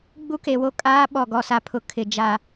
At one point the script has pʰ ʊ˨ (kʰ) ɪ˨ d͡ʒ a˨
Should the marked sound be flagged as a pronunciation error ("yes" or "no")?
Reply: no